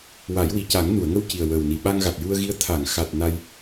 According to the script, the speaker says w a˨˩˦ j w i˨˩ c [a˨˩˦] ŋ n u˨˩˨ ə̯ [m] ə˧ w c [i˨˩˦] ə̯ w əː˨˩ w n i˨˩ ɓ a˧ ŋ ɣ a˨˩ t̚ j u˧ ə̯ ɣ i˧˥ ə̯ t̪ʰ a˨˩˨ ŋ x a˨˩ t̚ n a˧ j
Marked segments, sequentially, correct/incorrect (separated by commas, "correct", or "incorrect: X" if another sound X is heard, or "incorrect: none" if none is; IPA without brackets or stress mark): correct, incorrect: ŋ, incorrect: i˨˩